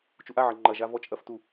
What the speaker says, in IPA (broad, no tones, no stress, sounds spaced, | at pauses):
t͡ʃ u ʔ a ʕ ɐ ŋ͡ǃ ɐ ʒ a v ɔ t͡ʃʼ ɐ f t u